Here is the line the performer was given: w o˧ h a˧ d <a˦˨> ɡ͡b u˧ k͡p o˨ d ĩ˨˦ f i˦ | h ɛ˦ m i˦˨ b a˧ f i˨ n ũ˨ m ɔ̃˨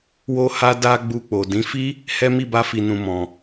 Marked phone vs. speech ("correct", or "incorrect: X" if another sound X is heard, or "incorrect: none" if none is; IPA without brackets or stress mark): incorrect: a˧